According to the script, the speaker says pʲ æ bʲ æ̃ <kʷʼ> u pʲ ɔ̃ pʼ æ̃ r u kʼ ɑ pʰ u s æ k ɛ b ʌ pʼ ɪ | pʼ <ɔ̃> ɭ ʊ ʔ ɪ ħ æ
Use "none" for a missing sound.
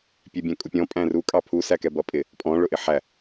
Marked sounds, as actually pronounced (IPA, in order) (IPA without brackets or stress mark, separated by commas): kʼ, ɔ̃